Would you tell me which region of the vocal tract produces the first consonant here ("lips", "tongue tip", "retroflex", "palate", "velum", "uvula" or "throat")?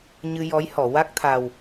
palate